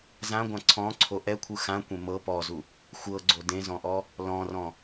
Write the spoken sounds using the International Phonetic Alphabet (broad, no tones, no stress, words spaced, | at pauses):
zãɡʷã ǀʰɔ̃ǀʰo ʔɛkʷʰɯ xãkʷẽ mɤ pɔzu | xʷɤɡ͡ǀo dẽzɔ̃ʔɔ | lɔ̃rɔ̃